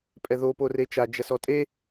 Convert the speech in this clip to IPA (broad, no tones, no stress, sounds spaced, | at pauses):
pʼ ɛ ð o p o r e t͡ʃ a d͡ʒ ɐ s ɔ tʼ e